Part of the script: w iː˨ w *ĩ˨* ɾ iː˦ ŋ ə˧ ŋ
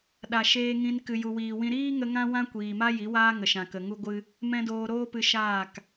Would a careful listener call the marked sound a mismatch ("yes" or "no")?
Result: yes